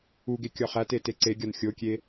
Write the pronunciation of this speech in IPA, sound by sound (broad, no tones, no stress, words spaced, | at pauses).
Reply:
uɡe kʲɒχæte teǀeɡʲɒn xʲokʲe